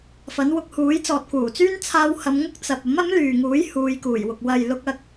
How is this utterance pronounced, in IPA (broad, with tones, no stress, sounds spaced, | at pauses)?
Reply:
f ɐ˨˥ n w ʊ˧ k̚ h uː˨˥ j t͡s ɔː˨ t̚ k uː˨˩ t͡s yː˥ n t͡sʰ aː˧ w h ɐ˨˧ m ŋ ʊ˥ k̚ t͡s ɐ˨ p̚ ɐ˨˥ m ɐ˨˥ m l yː˨ ŋ uː˨˥ j h uː˨˧ j k uː˨˩ j w ʊ˨ k̚ w ɐ˨ j l ʊ˧ k̚ ɐ˧ k̚